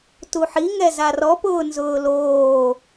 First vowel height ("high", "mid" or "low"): high